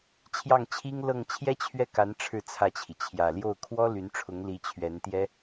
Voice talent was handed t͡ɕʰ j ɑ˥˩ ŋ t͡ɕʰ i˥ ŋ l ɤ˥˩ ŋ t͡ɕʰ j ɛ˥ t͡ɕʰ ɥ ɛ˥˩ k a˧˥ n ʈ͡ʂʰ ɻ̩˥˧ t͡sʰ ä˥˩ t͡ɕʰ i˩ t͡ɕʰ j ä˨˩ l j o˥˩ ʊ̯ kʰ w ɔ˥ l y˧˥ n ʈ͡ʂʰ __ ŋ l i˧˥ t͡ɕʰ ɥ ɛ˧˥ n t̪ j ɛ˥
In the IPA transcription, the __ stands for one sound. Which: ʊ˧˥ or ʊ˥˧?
ʊ˧˥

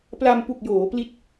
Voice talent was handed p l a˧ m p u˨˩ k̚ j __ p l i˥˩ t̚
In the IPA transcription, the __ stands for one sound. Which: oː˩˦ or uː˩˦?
oː˩˦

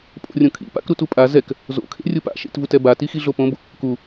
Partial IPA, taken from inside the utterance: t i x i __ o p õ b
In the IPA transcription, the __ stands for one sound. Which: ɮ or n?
ɮ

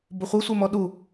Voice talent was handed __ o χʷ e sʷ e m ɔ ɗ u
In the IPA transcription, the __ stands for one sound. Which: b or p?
b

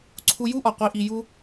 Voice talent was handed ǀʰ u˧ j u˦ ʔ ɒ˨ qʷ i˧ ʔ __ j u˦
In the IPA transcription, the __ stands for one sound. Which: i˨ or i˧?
i˧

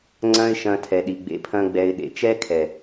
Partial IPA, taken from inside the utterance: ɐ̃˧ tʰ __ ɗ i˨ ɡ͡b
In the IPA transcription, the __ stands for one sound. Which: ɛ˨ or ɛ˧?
ɛ˨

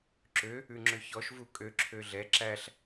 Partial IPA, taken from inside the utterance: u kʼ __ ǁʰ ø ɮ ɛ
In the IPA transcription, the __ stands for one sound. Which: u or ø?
ø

